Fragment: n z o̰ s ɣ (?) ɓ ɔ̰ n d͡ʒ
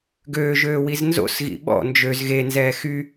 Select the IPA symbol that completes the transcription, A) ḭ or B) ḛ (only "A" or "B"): A